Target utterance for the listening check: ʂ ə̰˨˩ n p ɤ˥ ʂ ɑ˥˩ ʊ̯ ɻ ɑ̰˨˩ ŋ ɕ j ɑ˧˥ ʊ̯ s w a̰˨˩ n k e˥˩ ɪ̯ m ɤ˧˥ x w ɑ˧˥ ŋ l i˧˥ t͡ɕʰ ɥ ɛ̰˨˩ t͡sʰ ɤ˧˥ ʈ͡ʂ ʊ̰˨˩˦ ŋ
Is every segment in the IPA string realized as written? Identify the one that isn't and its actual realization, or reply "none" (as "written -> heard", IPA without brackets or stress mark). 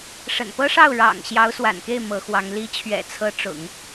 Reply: none